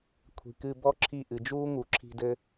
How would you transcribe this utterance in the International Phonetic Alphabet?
kʷʰ i̤˩ k ɨ˧˩ b ɔ˦ ǁʰ i˧˩ ʔ ɨ˩ d͡ʒ uː˦ ŋ u˩ ǁʰ i̤˧˩ d ɘ˦

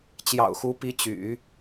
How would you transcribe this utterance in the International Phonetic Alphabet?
t͡ɕ j ɑ̰˨˩ ʊ̯ x u˧˥ p i˧˥ t͡ɕ y̰˨˩˦

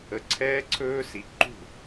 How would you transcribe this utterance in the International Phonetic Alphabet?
ə˨˦ ǀʰ ɛː˦˥ ǀʰ ɵː˦˥ s i˨˦ ǃ ṳ˥˩

